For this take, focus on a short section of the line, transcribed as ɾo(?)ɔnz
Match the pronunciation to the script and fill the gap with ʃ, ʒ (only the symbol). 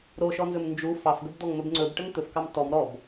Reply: ʃ